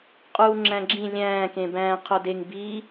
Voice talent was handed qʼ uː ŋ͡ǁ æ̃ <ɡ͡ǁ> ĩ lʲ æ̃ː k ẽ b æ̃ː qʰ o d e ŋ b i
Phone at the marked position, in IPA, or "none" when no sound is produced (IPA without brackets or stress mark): ɡ͡ǁ